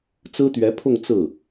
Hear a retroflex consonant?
no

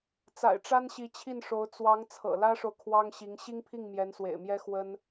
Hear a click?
no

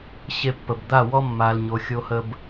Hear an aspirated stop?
no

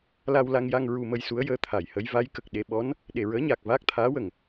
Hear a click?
no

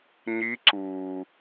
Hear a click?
yes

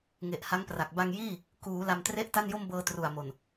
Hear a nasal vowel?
no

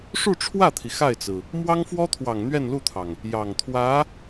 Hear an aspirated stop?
yes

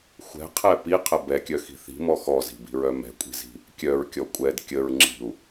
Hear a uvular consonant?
yes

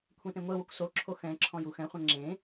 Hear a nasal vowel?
yes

